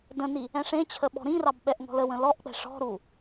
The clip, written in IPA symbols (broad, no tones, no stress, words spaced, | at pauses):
də̃ni | ɛ̃ʂẽt͡ɕʰə ɓɔ̤ɾĩrɑb ɓɛʔŋɔ̤ləwə̃ lɔʔk͡pɛ̤ ʂɔ̤ɾu